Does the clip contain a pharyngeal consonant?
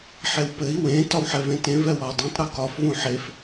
yes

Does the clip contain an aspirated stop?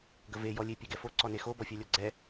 no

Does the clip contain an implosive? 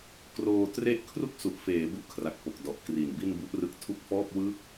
no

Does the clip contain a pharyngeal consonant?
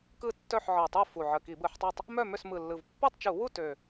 yes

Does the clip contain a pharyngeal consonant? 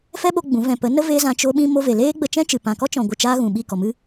no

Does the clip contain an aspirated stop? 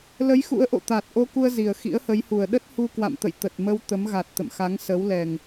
no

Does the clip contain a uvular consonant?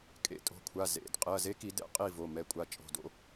yes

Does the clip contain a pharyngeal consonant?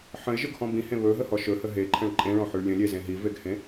yes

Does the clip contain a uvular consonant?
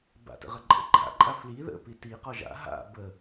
yes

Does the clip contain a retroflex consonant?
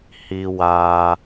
no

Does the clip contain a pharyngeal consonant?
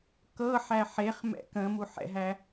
yes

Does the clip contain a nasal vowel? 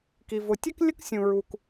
yes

